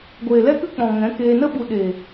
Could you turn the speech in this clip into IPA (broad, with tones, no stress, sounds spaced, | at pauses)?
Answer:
ɡʷ eː˨ l ɛ˦ k ɨ˦ k͡p ɔ̃˨ ŋ ɛ̃˨˦ k eː˧ n ə˧ ɓ u˨ ɗ eː˨